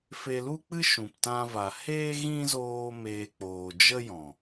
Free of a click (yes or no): yes